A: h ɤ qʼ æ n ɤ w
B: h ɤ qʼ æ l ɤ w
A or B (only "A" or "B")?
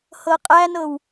A